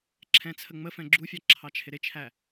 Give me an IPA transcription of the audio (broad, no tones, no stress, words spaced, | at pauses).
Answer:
ǁʰɛ̃t͡sʰəŋ͡mə fɛ̃ɡ͡ǁufʲɑ ǁʰɑt͡ʃʰɪɾɪt͡ʃʰæ